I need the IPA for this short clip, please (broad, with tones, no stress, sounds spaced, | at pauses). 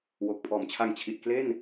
w o˨˩ k̚ pʰ ɔː˨˩ m t͡ɕʰ a˧ ŋ t͡ɕʰ i˨˩ t̚ k l e˥˩ n